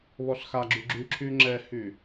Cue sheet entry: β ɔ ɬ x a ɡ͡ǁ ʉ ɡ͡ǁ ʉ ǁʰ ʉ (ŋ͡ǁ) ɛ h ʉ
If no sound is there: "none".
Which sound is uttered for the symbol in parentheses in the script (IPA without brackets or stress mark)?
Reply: ŋ͡ǁ